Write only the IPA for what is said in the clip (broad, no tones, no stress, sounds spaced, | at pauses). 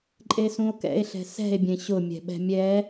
ǃʼ e s ũ o̯ k ɛ̰ e̯ ɬ ɛ̤ s ɛ̤ e̯ bʲ ẽ ɕ ʊ mʲ ɛ̤ ɓ ɛ̤ mʲ ɛ